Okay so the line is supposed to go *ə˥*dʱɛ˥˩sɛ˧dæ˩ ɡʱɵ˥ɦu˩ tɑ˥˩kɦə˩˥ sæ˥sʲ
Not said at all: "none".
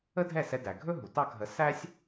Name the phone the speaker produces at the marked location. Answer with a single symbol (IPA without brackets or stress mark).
ə˥